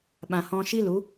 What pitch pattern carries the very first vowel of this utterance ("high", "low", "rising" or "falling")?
low